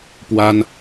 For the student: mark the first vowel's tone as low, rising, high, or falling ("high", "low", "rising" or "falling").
high